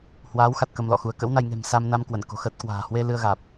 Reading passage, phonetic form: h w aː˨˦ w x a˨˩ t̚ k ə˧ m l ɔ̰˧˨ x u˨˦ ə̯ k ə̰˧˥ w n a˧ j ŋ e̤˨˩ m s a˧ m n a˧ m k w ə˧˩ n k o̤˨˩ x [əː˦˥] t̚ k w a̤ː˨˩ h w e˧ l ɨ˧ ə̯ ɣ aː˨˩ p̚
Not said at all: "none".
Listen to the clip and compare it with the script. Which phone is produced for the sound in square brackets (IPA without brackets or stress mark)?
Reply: əː˦˥